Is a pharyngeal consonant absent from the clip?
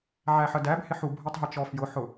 no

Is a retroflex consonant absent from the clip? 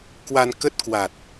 yes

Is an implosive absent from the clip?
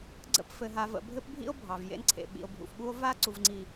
no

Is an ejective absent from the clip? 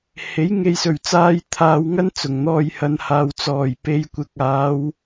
yes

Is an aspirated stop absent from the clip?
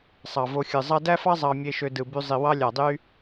yes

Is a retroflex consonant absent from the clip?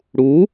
no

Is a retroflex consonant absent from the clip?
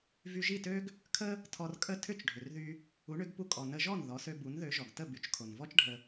no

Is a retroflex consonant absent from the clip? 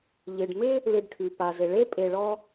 no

